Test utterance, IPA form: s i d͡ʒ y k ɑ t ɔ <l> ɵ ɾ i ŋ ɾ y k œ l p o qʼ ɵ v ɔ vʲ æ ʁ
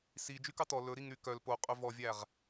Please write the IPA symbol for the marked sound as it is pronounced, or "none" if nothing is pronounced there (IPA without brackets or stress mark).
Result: l